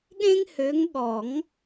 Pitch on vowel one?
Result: high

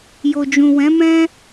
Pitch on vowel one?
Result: low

